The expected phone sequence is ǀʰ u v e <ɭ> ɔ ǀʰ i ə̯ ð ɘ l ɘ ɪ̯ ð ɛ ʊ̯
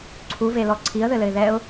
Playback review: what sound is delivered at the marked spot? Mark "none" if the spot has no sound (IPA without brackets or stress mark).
l